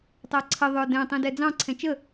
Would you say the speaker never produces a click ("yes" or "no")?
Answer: no